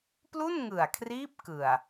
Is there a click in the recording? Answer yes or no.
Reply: no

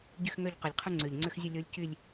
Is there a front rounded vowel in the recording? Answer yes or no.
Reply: yes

